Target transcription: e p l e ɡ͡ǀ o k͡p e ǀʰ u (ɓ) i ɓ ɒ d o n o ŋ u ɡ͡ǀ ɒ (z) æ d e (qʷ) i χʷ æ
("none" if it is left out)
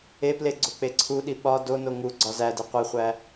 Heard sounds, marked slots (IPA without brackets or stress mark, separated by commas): ɗ, z, qʷ